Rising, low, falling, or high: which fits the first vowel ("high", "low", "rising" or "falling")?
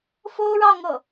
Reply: high